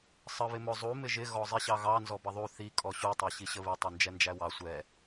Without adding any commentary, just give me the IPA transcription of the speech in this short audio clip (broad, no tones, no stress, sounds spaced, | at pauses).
sˤ ə β ɪ m ʊ zˤ u m ɪ ʒ ɪ ɣ ɔ zˤ i ɕ ɑ ɣ ɑ n z ɔ b ʌ ðˤ u θ i kʼ ɔ ɕ u tˤ æ ɕ i ɕ ə β i tˤ i n d͡ʒ ɛ n d͡ʒ æ w ɑ sʷ ɛ